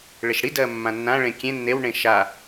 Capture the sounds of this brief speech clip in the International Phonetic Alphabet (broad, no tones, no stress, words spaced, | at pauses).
ɭeʃɽidɜː mːãnːãɭẽ kʲẽ nːewɳẽ ʃa